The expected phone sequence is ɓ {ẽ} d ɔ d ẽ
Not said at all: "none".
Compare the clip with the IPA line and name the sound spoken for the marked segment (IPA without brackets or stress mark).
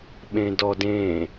ẽ